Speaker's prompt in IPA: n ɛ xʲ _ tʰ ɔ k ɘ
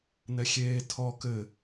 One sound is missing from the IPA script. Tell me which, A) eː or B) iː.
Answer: A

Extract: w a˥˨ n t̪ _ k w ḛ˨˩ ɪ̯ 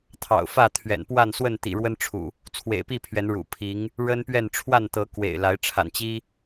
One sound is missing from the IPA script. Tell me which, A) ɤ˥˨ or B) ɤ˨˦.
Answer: B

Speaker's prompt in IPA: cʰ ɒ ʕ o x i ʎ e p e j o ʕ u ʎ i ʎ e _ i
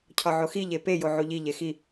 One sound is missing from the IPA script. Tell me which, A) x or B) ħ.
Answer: A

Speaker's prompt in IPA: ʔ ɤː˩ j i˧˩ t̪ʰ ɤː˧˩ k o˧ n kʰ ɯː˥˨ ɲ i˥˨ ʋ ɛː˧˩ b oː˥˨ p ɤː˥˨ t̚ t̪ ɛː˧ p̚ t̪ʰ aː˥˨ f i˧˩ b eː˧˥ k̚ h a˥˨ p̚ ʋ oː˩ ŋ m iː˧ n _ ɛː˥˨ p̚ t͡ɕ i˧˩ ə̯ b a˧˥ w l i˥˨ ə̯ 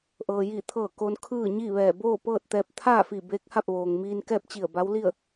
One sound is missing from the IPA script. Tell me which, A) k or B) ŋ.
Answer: A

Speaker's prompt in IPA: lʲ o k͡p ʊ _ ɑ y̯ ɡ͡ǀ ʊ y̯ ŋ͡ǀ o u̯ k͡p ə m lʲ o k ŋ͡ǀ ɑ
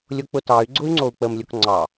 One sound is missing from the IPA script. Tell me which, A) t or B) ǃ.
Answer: A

